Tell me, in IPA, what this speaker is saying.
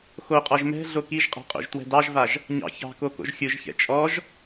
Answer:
x o qʼ ɔ ʒ m ɛ̤ ɮ o k i ʒ qʼ ɑ̤ qʼ o̰ ʒ t w ɛ̤ d ɑ ʒ v a ʒ | ɲ ɑ̰ ç ɑ̤ k o k o̰ ʒ xʲ ɯ ʒ ç ɛ̰ t͡ʃʼ ɔ ʒ

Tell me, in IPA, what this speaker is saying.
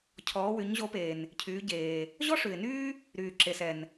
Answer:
cʰ ɔː˩˧ w y˩˧ ɲ ʑ o˨˥ p eː˩ n | cʰ yː˩˧ ɟ eː˩ | ʑ ɔ˥ ʂ ʉ˩ ɪ̯ n yː˥ | ɾ yː˩ ǁ e˩ s ɛ˩ n

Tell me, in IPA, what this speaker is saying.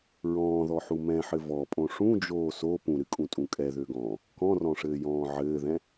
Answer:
ɹ ɔ̃ː ð ɔ ħ u m ɛ̃ ħ ɘ v ɔ pʼ õ ʂ ũ d͡ʒ oː s o p ũ ɾ ɨ kʼ ũ tʼ ũ kʼ ɛ ð ø ɡ ɔ̃ː | k ɔ̃ r ɔ̃ ʂ ɘː j ɔ̃ː ʕ ɘː ð ɛ̃

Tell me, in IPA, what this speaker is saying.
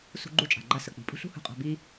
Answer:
s ṳ˧ ɡ͡ǃ u˧ t͡ʃʼ a̤˩ ɡ͡ǃ a˧ s ə˩ k͡p i̤˩ pʼ ṳ˥ ɬ ṳ˥ h ṳ˧ qʼ a̤˧ b i˥

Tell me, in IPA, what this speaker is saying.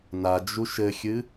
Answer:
n a d͡ʒ u ʃ ɘ xʲ ɨ

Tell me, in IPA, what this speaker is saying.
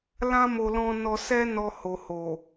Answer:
l ã˦ m o˧ l ɔ̃˧ n ɔ˧ s ɛ˦ n ɔ˧ h o˨ h o˨

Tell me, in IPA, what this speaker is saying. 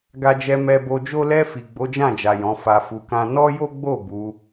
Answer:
ɡ a˧ d͡ʒ ɛ˧ m ɛ˧ b o˧ d͡ʒ o˦ l ɛ˧ f i˨ ɡ͡b o˨˦ d͡ʒ ã˦˨ d͡ʒ a˨ j ɔ̃˨˦ f a˧ f u˧ k ã˦ n ɔ˦ j o˦ ɡ͡b o˦˨ b u˨˦

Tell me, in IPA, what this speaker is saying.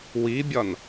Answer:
w i bʲ ɒ n

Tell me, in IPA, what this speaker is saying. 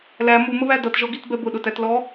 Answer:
l æ m u m ə β æ d ʌ t ʒ ɔ ɡ i t b ɛ b ʊ ɗ ʊ t æ t l ɔ

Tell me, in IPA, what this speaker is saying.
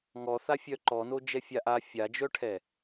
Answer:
ŋ ɔ θ a fʲ œ ǃ ɔ n o d͡ʒ ɛ fʲ a ʔ a fʲ a d͡ʒ œ ʈʰ ɛ

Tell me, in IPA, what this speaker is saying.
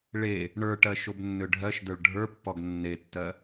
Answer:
ɭ e | ɳ ə˞ ʈ ɜ ʃ o b nː ø ɖʱ ɜ ʃ d ə˞ ɭ ɖʱ ə˞ pː ɔ ɡ nː e tː ɜ

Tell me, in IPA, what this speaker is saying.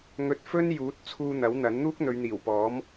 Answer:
ŋ ɵ˧ t̚ f ɵ˥ n j uː˨˥ t̚ t͡sʰ uː˨ n̪ ɐ˨˥ w n̪ ɐ˨˥ n n̪ uː˥ k̚ n̪ ɵ˨˧ ɥ n̪ iː˨˩ w p ɔː˨˥ m

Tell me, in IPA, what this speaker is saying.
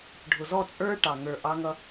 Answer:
ɖʱ ʊ˨ z ɔ˦˨ t͡sʼ ə˞˦ ʈ ɑ˨ ŋ ə˞˨ ʔ ɑ˦ ŋ ʌ˦

